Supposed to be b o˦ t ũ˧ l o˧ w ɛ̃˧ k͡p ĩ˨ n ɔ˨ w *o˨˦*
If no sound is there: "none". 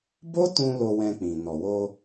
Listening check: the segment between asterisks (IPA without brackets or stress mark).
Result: o˧